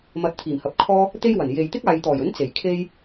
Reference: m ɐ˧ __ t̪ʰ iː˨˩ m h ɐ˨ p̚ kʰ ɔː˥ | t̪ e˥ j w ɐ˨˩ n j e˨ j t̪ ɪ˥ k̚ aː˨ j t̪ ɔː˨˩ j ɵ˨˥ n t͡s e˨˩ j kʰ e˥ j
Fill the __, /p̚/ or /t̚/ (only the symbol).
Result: t̚